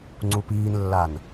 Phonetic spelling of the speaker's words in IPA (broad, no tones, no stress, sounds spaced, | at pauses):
ŋ͡ǀ u p iː n lː a n